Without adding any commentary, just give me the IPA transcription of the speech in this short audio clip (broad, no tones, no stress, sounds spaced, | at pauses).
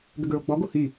ɡ ə ɡ ɹ o ɡ͡b ɔ ɡ o h y